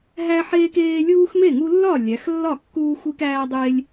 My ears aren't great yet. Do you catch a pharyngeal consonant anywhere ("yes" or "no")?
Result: yes